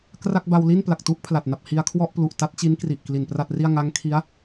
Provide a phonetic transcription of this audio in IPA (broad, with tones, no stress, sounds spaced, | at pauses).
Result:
k r a˥˩ k̚ b a˧ w l i˥˩ n p l a˨˩ k̚ t u˥˩ ʔ pʰ l a˨˩ t̚ n a˨˩ p̚ h i˧ a̯ kʰ w ɔ˥˩ ʔ p l u˨˩ ʔ t a˦˥ t̚ t͡ɕ i˦˥ n k r i˨˩ ʔ k l i˨˩ n p r a˥˩ t̚ r i˥˩ a̯ ŋ a˦˥ ŋ kʰ i˦˥ a̯